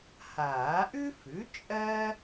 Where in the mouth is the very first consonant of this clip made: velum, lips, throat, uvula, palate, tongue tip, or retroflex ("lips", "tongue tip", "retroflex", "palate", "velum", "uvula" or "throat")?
throat